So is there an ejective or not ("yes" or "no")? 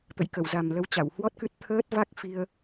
no